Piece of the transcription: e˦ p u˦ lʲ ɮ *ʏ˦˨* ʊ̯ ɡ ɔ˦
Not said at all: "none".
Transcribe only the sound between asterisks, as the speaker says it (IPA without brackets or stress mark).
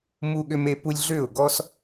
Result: ʏ˦˨